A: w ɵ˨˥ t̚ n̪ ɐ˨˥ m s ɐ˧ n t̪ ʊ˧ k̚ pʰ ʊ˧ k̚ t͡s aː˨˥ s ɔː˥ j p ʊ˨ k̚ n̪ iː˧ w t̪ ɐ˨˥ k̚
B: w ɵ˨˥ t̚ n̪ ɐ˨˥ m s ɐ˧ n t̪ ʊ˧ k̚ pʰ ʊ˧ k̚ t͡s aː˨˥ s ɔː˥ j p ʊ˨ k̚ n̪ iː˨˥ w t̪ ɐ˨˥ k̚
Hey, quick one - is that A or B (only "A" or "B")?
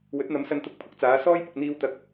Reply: A